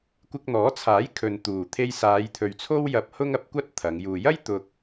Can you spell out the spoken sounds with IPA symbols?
kʷ ɪ˧ k̚ n̪ ɔː˨˥ t͡sʰ aː˨˥ j kʰ ɵ˨ n t̪ uː˨˩ t̪ʰ e˧ j s aː˨˧ j t̪ʰ ɵ˨ ɥ t͡sʰ o˥ w j ɐ˧ p̚ h ʊ˥ ŋ ɐ˨˥ p̚ kʷ ɐ˥ t̚ t̪ʰ ɐ˨˧ ŋ j uː˨ j ɐ˥ j t̪ ʊ˧ k̚

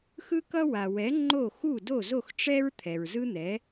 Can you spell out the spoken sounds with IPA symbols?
x ɯ˥ k ʌ˥ w a˩ w ɛ˩˥ ŋ͡ǃ o˥˩ x u˥˩ d o˥˩ z o˥˩ x ʈ͡ʂ ɛ˥ ɹ t̪ʰ ɛ˩ ɹ z ɯ˥ n̪ ɛ˩˥

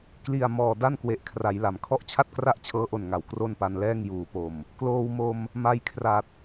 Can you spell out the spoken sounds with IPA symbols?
k l i˨˩ a̯ m ɔː˨˩ d a˥˩ n k w e˨˩ ʔ kʰ r a˩˦ j l a˩˦ m kʰ ɔ˥˩ ʔ t͡ɕʰ a˥˩ t̚ k r a˥˩ ʔ t͡ɕʰ ɤː˦˥ ʔ o˨˩ n ŋ a˩˦ w k r o˥˩ n p a˧ n l ɛː˥˩ ŋ j uː˩˦ p o˨˩ m | k l oː˧ w m o˧ m | m a˧ j kʰ r a˨˩ t̚

